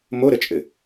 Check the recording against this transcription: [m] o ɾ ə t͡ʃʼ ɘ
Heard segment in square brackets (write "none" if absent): m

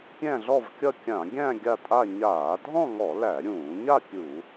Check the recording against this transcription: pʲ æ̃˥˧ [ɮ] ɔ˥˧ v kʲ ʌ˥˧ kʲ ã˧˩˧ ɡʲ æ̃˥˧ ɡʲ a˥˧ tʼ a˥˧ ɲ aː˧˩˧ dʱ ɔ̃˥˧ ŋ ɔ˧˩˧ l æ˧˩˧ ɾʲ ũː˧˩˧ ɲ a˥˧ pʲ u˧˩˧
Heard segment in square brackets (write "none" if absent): ɮ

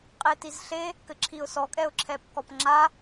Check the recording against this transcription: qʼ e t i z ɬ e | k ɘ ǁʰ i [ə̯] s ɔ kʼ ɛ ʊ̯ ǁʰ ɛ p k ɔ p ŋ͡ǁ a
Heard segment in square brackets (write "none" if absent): ʊ̯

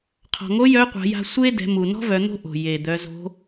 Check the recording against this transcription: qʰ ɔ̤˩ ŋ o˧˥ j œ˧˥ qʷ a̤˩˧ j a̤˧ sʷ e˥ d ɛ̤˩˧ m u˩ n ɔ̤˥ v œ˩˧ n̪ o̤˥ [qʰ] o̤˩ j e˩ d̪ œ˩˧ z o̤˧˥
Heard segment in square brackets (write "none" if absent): ʔ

